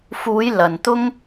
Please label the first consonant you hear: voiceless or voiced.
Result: voiceless